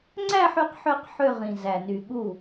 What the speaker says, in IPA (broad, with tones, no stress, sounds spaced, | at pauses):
ŋ͡ǀ æ˥˧ ħ y˥˧ q ħ ø˥˧ q ħ ø˥˧ ʁ ĩ˨˩ z æ˨˩ n y˨˩ ɠ u˥˩